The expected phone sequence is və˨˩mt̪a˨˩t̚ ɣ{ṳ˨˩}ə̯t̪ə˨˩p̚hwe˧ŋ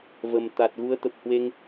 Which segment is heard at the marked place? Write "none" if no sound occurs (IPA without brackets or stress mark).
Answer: u˨˦